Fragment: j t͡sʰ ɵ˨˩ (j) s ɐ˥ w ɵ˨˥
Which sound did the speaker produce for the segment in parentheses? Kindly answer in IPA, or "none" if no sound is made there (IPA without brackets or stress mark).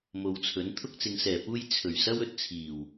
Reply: ɥ